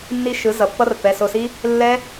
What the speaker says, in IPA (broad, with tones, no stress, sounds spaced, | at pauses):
nː i˦˥ ʃ ɯ˩˥ z ʌ˩˧˩ pː ʌ˦˥ r pː ɛ˩˧˩ s o˧˩ s i˦˥ | lː ɛ˦˥